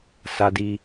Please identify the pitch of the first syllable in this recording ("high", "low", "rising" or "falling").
high